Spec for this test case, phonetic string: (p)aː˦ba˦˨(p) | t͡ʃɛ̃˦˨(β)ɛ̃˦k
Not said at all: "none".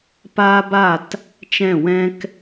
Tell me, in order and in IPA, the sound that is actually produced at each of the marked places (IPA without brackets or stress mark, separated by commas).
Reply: p, t, w